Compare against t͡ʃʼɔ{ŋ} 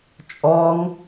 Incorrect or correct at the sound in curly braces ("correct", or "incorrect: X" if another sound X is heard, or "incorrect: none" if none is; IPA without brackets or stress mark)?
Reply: correct